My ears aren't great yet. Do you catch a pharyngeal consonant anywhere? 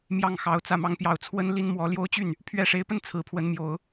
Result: no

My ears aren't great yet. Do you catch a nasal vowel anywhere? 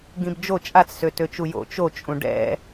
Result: yes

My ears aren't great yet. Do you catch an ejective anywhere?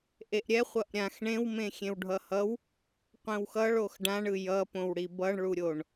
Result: no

